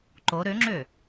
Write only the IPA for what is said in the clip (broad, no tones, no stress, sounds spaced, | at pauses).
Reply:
ǃ o ɾ ø ŋ͡ǁ ø